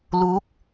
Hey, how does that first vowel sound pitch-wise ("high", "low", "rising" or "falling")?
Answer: rising